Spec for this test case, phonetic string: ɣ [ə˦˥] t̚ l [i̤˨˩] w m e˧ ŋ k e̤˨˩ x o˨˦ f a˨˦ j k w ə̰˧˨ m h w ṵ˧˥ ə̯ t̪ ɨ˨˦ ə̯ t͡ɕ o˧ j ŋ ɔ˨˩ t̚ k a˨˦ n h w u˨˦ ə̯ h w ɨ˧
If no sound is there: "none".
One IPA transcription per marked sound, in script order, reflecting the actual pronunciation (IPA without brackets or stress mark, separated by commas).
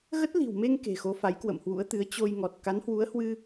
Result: ə˦˥, i̤˨˩